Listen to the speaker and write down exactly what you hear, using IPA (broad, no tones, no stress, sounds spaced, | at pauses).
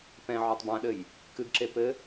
p ɛ̃ ʕ ɔ tˤ b ã ɗ ɘ j | k ɨ ɡ ǁ e p ɘ